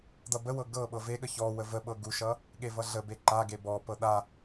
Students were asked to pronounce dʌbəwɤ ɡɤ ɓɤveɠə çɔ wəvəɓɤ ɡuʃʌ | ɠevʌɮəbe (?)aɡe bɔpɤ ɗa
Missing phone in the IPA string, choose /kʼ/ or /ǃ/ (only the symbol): ǃ